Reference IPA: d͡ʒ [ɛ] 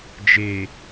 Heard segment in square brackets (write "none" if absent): e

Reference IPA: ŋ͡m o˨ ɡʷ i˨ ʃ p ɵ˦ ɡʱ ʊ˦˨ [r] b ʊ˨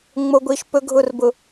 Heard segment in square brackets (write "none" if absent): r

